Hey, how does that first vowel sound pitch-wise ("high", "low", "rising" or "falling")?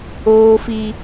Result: high